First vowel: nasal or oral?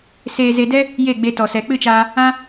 oral